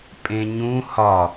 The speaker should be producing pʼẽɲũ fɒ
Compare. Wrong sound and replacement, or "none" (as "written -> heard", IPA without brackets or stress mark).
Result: f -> h